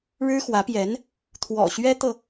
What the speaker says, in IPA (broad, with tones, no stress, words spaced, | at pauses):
ɻɻ̩˥xwä˧˥pjɛ˧˥n | t̪ʰwɔ̰˨˩ɕɥɛ˥t̪ɤ˨